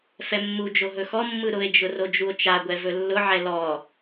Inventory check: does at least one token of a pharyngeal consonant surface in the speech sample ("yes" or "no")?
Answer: yes